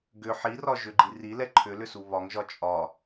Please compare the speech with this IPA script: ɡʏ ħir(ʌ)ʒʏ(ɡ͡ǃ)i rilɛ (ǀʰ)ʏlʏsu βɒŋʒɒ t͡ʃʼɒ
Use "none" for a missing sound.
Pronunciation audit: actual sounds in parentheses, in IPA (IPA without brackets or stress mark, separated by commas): ɒ, ɡ͡ǃ, ǃʰ